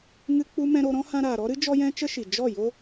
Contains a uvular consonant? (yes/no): no